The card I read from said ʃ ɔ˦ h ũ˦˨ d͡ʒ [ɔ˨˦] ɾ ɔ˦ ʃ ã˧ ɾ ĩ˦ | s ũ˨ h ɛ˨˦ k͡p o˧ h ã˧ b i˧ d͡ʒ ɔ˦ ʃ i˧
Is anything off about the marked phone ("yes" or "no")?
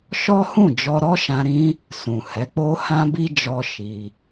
yes